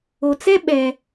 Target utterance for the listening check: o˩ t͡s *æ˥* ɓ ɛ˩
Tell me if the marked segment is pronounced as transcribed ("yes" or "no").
no